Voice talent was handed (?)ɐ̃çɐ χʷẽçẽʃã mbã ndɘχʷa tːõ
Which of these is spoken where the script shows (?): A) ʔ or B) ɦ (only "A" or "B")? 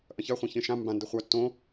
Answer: A